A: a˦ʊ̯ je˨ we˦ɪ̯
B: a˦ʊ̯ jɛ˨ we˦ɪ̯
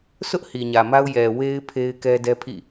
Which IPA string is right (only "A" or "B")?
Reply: B